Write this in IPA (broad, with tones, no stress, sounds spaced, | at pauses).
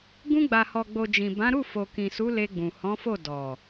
ɡ ũ˧ ɡ͡b a˨ h ɔ˨ ɡ͡b o˨ d͡ʒ ĩ˨ b ã˨˦ ɾ u˦˨ f o˨ k ĩ˨ s u˨˦ l e˧ ɡ͡b ũ˨ h ɔ̃˨˦ f o˦˨ d ɔ˨